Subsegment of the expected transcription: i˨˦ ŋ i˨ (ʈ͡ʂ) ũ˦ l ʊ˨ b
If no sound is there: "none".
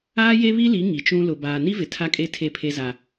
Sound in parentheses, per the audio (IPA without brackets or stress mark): t͡ʃ